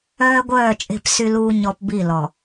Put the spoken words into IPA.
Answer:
œː˦ ɡʷ œː˦˨ t͡ʃʼ e̤˦˨ p s y˦ l uː˦ ɲ ɔ˦ p b i˦˨ l ɔ˨

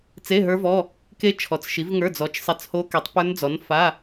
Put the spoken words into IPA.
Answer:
t͡s e˧˥˧ ɦ ə˞˦˥ v ɔ˧˥˧ | k e˦˥ t͡ʃʰ ɔ˨˥ t͡s ʃ i˨˥ v ŋ ə˞˧˥˧ d͡z ɔ˨˥ t͡ʃ sˤ e˧˥˧ t͡s h o˦˥ k e˨˥ tˤ p ə˞˦˥ n d͡z ɔ˨˥ n f a˧˥˧

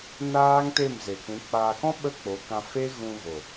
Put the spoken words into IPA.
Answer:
n aː˦ ŋ t e˦˨ m z e˨ kʷ ũ˨˦ k͡p aː˧ k ɔ̃˦ ɓ ə˦ k͡p o˨˦ k ã˧ f e˦ ɣ ũ˧ ɣ o˨

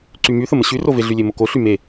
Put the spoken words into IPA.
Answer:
ǀ y m y θ ə m ə ɕ y r o v e ɮ y lʲ e m o k o ɬ y m e

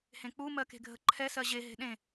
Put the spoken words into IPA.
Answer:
h ẽ k͡p u m ɜ k e̤ ɡʱ ə ǃʰ ɛ s ɜ ʑ e ɦ e̤ ɗ ẽ

